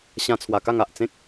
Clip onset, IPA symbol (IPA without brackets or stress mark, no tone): ɕ